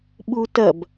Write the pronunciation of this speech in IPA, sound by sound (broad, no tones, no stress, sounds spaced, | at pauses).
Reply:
ɓ u t ɐ b